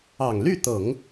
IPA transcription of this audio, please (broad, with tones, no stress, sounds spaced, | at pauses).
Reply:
ɑ˨˩ ŋ l y˥˩ t̪ ɤ˨˩˦ ŋ